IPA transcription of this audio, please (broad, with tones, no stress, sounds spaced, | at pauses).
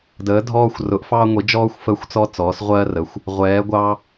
d əː˩˧ dʱ ɔː˧ xʷ r ʊ˩˧ ʔ f ɑː˧ ŋʷ i˩˧ d͡ʒ ɔː˧ xʷ f əː˧ xʷ t͡s ɔ˧ t͡s ɔː˩˧ s ʁʷ ɜː˧ r ə˩˧ xʷ | ʁʷ ɛː˩˧ ɡʷ ɑ˧